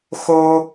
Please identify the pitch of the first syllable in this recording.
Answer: high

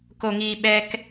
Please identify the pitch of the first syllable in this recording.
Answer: low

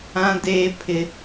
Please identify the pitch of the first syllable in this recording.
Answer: high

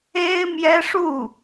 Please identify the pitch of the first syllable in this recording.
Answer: high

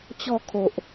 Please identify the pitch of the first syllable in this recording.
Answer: falling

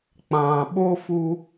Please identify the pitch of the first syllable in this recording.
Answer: low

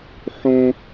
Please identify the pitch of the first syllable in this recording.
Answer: high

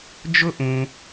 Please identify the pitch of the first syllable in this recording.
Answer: high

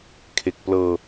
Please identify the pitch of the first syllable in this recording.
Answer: low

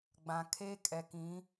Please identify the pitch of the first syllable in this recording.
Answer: low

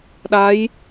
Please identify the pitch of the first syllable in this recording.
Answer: rising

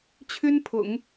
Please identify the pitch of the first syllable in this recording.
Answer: high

